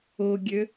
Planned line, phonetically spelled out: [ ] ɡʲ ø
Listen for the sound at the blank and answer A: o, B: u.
A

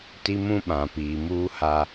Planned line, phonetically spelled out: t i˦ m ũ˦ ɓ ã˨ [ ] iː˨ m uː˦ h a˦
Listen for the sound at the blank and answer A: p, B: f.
A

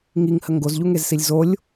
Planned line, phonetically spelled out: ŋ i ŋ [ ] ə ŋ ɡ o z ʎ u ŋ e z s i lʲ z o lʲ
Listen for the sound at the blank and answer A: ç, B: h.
B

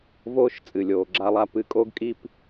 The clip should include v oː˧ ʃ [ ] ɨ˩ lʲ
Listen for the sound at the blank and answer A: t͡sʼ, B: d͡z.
A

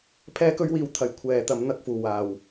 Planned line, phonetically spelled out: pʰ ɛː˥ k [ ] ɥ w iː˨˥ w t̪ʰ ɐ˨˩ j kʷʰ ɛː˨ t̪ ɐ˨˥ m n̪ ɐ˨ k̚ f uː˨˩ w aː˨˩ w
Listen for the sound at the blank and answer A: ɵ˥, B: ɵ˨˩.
A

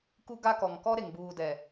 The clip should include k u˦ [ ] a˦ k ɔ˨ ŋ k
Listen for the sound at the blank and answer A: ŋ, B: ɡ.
B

